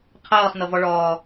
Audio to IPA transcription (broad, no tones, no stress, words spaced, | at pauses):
qʰɤːχnɤvɔ ɭɔː